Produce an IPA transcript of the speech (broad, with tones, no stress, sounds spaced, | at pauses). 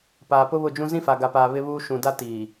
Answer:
p aː˨ p ʊ˦ β ʊ˦˨ d͡ʒ ũ˦ z ĩ˦ f a˨ ɡ a˨ p aː˨ β ɪ˦ β uː˦ ʃ ũ˨ d a˦ t iː˨